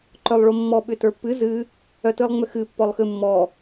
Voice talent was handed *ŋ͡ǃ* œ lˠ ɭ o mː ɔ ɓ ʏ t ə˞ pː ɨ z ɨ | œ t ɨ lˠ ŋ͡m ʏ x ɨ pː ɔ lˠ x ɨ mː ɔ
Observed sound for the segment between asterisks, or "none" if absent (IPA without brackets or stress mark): ǃ